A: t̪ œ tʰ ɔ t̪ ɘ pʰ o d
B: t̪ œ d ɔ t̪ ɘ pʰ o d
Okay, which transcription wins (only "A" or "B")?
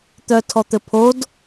A